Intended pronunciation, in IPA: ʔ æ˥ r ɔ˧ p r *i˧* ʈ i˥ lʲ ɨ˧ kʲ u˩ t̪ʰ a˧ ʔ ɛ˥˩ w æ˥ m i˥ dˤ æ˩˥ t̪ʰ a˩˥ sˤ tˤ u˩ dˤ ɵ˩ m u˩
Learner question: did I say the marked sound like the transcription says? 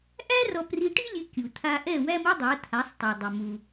yes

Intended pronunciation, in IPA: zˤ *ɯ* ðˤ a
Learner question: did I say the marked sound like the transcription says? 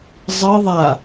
yes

